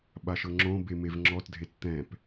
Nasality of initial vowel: oral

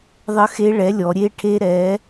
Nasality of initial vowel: oral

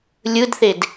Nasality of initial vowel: oral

